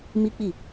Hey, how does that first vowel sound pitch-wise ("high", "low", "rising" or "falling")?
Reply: high